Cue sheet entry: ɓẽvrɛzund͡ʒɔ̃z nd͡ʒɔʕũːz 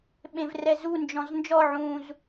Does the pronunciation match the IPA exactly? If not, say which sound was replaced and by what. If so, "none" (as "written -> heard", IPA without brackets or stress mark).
none